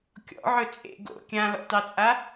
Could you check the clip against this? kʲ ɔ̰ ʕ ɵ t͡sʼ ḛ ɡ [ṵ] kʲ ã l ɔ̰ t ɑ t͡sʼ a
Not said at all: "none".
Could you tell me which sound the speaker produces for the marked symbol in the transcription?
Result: o̰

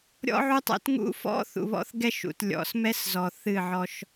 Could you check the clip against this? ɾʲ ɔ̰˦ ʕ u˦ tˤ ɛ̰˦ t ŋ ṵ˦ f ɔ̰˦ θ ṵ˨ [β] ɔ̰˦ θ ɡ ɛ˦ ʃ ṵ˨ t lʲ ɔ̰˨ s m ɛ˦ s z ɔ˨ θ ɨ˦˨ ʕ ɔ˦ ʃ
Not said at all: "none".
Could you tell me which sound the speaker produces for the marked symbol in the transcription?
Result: β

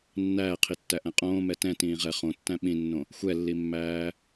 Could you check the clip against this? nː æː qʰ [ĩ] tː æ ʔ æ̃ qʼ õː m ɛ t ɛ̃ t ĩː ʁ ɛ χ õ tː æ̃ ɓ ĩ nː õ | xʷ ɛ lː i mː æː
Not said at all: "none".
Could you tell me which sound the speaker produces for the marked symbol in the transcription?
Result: i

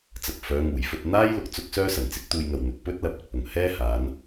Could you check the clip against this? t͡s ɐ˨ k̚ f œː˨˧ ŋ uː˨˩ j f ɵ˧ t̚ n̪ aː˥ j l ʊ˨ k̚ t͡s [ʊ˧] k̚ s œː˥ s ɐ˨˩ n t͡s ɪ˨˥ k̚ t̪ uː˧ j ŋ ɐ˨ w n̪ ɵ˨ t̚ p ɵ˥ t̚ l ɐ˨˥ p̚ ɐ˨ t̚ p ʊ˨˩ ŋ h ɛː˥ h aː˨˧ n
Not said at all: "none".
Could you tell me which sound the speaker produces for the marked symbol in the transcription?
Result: ʊ˥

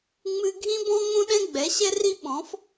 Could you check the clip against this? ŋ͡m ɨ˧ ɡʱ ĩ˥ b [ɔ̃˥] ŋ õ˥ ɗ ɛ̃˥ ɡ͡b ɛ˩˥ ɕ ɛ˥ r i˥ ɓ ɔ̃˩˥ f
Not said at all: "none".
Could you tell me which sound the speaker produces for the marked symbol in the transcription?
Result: ɔ̃˥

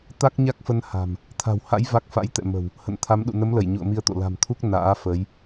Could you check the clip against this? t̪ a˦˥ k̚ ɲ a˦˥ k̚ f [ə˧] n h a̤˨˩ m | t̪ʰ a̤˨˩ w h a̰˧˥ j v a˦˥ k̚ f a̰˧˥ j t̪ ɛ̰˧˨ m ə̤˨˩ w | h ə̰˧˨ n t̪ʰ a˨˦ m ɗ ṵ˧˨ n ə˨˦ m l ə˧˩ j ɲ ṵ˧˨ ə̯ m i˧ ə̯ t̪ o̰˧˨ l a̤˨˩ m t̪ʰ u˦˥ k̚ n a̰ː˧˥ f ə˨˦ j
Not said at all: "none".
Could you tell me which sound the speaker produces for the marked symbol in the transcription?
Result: ə˧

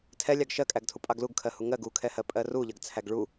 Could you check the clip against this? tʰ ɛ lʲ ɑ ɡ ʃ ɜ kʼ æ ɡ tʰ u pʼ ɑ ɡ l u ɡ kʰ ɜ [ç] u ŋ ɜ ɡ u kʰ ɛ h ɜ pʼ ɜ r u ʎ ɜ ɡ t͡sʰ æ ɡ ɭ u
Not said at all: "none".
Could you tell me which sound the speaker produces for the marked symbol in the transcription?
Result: h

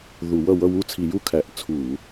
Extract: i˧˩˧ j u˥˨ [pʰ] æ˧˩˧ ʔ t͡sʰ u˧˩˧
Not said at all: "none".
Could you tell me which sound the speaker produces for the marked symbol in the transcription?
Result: kʰ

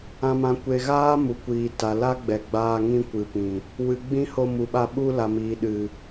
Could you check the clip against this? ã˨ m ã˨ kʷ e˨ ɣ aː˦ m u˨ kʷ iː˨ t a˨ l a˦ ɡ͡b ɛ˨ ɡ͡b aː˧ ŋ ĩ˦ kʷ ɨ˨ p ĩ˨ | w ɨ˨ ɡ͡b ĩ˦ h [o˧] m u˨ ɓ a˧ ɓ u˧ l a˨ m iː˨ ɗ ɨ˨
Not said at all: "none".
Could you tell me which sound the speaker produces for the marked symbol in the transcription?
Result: o˧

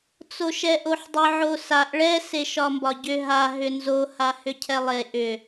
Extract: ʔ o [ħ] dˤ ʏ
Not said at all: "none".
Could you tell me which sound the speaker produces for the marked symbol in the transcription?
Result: ħ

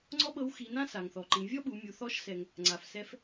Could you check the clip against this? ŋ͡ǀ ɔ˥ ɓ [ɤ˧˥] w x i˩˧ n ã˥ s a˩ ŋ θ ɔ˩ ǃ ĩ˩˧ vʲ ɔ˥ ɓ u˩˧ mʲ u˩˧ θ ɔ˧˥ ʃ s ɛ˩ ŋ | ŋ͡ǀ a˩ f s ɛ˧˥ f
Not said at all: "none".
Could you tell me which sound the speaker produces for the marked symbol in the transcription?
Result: ɤ˧˥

